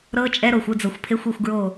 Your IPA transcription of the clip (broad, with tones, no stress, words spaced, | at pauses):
ɾɤ˦˥t͡ʃʼɛ˦˥ ɾo˨xʷɯ˥˨d͡zɤ˨xʷpʰe˦˥xʷ i˥˨xʷɡɹo˥˨